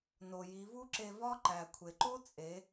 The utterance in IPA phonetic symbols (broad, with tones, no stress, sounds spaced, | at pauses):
n o˩ j i˩˧ v u˥ ǁ e˧ v ɒ˥ ǃ æ˩ kʷʰ e˩ ǃ o˥ t͡sʼ e˩˧